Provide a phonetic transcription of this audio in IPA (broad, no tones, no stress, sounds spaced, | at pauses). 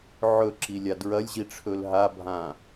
ʕ ɵ ǁ i lʲ a d ɹ ɐ lʲ ʑ i ʈ͡ʂʰ ɵ l ɦ a bʱ ã